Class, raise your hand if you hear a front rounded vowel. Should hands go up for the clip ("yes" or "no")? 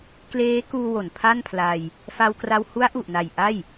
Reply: no